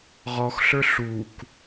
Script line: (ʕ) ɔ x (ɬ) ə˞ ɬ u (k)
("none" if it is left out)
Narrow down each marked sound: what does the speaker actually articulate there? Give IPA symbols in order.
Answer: ʁ, ɬ, k

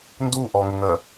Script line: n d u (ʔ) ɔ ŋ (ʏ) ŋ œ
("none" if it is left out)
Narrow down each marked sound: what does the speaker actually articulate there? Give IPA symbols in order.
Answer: ʔ, ʏ

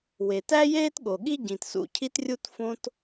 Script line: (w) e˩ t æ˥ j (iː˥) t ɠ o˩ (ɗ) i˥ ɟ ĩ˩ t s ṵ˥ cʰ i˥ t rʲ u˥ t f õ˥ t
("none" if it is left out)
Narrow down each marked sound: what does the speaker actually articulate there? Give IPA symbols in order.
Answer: w, eː˥, ɠ

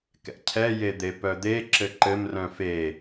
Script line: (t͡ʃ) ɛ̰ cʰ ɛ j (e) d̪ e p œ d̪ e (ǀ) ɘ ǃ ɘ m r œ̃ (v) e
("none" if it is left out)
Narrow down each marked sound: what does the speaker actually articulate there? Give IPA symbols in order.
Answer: k, e, ǁ, f

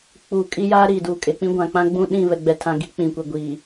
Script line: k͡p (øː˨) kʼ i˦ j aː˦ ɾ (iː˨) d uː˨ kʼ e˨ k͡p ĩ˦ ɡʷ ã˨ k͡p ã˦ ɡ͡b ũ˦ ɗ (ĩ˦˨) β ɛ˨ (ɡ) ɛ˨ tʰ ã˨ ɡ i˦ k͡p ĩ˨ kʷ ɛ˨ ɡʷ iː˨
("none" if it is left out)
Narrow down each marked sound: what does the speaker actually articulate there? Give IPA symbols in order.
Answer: uː˨, iː˨, ĩ˦˨, ɡ͡b

